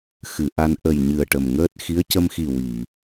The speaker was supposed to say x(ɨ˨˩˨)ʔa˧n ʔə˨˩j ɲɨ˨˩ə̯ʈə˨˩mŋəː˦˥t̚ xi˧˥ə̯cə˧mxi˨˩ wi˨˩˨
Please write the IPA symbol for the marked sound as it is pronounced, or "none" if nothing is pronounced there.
ɨ˨˩˨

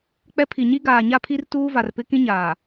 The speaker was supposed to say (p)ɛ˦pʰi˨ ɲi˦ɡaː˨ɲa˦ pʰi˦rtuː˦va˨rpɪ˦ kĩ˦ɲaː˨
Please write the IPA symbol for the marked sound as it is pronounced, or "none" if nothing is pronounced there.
k͡p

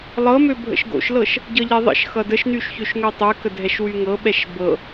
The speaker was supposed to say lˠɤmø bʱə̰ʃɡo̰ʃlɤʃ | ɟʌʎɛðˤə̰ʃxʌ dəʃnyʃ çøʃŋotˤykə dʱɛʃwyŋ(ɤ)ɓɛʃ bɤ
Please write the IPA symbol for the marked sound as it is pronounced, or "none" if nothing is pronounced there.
ɤ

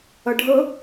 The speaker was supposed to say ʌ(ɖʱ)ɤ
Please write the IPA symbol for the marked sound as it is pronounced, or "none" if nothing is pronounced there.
ɖʱ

